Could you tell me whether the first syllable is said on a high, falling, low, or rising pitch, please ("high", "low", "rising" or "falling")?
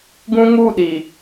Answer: high